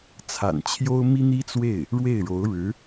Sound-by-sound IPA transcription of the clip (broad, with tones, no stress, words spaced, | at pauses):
t͡sʰa̰˨˩nt͡ɕʰjo˥ʊ̯ mi˥n̪i˥t͡swe˥˩ɪ̯ | ɻwe˥˩ɪ̯ɻo˧˥ʊ̯ɻɻ̩˧˥